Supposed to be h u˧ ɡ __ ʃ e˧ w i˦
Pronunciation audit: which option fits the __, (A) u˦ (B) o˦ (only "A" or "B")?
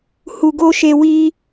B